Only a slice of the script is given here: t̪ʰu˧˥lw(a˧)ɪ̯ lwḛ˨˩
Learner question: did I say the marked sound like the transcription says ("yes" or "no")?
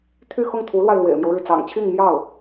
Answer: yes